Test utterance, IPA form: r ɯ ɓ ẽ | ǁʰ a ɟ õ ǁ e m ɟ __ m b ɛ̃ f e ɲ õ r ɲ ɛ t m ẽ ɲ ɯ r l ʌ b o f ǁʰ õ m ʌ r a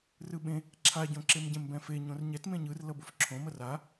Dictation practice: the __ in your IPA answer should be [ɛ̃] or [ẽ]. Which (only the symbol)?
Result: ɛ̃